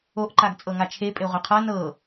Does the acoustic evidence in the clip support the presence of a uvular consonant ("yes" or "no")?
yes